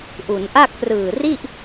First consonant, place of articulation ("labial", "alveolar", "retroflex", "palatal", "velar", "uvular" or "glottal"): glottal